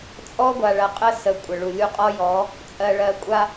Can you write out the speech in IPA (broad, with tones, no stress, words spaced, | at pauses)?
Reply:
t͡sʼɔ˦ɡʷa˨ɭɐ˨qʼə˦ sə˨ kʷʼə˨ɭu˨ lʲu˦ qʼɔ˦jɔ˨˦ | t͡sʼɜ˨ɭɜ˨kʷʼa˦